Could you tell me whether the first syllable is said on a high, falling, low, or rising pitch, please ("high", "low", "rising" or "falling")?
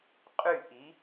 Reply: falling